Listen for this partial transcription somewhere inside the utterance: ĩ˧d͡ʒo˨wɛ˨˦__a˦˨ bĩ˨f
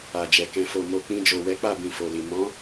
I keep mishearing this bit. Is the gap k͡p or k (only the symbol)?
k͡p